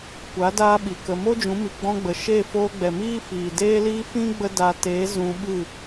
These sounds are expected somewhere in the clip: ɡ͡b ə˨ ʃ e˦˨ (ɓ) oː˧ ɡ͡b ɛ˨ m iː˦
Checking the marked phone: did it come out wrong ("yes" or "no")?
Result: yes